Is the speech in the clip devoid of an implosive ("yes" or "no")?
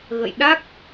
no